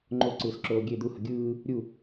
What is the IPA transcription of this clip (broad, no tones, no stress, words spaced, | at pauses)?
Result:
ŋ͡ǃoǀɯːsǁoː ɡʲe d̪uhʌ ɡʲɯː | ɾʲu